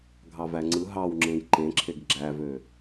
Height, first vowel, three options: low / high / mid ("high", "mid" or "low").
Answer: low